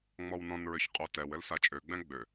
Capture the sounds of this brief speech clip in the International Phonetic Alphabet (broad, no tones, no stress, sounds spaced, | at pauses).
ŋ͡m ɔ w n ɔ̃ n ɹ ø ç qʼ o t ɛ w ɘ l s a t͡ʃʼ ø ɡ͡b ɛ̃ ɡ͡b ø